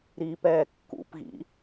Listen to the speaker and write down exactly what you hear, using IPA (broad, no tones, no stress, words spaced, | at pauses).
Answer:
ɾiːpɛːkːṵpɣḭ